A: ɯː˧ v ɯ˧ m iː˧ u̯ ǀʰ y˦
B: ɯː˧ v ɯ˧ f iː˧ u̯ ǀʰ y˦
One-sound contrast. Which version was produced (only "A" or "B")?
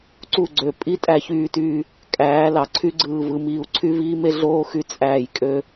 A